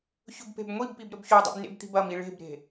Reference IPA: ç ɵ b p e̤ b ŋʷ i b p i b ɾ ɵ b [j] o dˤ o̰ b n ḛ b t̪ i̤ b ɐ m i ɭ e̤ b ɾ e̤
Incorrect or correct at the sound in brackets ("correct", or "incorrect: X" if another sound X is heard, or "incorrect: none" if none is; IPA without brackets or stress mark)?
incorrect: ç